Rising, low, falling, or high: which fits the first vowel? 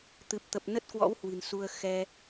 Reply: low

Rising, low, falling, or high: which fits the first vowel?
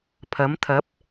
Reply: rising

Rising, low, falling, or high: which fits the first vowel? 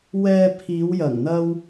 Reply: low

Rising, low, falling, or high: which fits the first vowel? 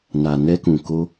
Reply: low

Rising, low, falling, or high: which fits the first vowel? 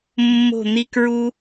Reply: falling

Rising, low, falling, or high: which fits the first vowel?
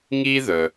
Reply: high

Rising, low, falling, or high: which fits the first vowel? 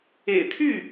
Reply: low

